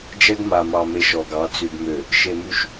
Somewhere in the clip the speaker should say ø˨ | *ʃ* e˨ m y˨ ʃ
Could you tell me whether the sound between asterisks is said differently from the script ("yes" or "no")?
no